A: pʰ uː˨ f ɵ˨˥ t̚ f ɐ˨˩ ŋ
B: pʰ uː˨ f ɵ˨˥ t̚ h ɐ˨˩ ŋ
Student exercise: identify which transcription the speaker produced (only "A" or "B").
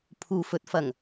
A